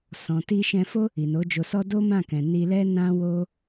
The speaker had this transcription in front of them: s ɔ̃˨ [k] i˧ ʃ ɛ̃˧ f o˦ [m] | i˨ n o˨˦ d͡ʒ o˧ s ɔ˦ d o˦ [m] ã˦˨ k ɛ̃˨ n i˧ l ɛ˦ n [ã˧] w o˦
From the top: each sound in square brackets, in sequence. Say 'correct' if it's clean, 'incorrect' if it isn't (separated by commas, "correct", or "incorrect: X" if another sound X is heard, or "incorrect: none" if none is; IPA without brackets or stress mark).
incorrect: t, incorrect: none, correct, incorrect: ã˦